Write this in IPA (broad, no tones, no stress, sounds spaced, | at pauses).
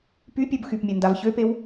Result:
p y pʲ o b x y p mʲ a n d a v ç ø p e w